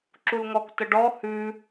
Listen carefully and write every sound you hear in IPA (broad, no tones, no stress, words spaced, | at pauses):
ǁulŋɔk təɖɔ hʉ